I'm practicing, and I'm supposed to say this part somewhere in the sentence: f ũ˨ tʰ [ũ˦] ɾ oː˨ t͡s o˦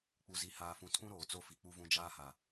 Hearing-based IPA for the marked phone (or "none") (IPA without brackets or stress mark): ũ˦